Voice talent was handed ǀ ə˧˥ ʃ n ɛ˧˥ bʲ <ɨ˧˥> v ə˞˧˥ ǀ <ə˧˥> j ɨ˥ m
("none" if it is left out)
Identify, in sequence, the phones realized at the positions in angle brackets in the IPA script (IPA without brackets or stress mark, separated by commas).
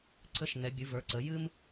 ɨ˧˥, ə˧˥